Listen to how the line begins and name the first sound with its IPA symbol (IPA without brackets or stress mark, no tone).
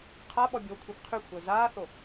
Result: qʰ